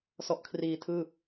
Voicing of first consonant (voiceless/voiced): voiceless